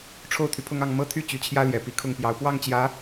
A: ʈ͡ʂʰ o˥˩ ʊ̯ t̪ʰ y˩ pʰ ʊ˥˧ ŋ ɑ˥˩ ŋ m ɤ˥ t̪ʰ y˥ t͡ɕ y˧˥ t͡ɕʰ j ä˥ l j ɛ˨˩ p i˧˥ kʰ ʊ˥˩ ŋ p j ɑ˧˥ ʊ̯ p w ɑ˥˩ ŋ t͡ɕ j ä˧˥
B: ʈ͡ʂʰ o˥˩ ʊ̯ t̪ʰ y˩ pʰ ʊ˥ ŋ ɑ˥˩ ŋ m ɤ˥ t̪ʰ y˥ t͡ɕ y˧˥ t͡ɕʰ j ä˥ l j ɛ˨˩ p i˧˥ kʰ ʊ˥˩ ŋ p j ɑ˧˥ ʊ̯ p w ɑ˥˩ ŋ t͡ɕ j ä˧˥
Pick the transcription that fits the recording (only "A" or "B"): A